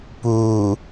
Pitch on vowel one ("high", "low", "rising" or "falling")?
low